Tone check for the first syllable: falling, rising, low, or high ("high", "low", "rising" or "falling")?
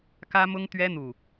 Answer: high